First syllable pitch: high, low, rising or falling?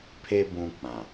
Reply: high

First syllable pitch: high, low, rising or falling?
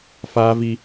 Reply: high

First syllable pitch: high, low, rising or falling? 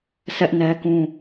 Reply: high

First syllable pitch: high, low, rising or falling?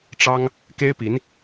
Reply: high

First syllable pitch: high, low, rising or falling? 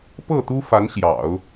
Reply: falling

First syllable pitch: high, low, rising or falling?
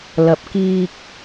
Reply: low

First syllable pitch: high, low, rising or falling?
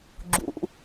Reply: low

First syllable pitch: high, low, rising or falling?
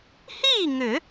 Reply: falling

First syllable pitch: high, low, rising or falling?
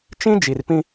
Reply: high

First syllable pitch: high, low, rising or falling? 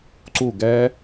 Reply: falling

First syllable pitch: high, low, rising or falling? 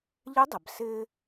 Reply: rising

